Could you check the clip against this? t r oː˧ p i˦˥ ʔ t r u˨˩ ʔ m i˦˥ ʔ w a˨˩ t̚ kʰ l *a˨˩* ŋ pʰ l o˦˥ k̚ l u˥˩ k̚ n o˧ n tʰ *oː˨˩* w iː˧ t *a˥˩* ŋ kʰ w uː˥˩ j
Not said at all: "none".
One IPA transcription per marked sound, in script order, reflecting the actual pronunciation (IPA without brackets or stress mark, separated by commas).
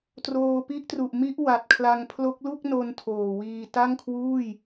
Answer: a˧, oː˨˩, a˥˩